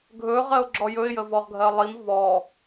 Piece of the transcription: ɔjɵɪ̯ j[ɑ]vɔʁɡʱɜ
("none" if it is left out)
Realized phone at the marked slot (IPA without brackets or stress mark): ə